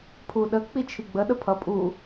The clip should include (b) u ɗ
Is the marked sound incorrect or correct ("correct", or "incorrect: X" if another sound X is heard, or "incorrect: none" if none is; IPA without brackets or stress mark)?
incorrect: pʰ